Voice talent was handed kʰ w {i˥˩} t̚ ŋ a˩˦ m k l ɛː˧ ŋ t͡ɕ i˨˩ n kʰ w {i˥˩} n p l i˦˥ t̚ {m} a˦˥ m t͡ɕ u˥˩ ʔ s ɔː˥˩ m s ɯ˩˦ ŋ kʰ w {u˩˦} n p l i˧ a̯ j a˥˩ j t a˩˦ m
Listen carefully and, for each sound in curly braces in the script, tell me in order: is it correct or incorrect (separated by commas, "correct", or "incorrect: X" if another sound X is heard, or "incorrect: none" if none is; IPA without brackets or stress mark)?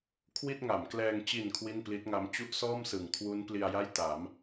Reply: correct, correct, incorrect: ŋ, incorrect: u˦˥